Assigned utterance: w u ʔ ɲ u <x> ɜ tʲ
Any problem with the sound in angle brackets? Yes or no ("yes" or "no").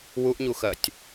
no